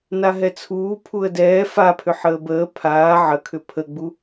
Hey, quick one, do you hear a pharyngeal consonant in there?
yes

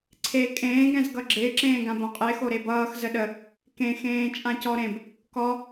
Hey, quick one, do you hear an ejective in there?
yes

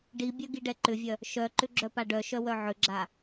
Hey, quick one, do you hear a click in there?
yes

